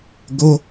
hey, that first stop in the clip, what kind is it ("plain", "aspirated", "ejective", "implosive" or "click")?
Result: plain